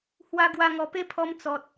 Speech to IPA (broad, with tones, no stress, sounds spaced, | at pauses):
h w a˦ ɡ w a˧ ŋ ɔ˨˩ p e˦ pʰ ɔ˧ m t͡s ɔ˨ t̚